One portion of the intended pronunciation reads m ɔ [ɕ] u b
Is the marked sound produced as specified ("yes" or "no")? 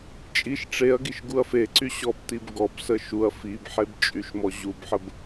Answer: no